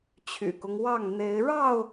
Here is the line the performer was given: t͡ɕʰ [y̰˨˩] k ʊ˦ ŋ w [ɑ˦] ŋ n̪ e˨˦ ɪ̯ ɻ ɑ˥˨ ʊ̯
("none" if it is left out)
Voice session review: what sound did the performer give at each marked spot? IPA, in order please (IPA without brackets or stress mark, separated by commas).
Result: y̰˨˩, ɑ˥˨